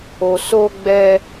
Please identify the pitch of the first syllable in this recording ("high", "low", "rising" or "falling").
low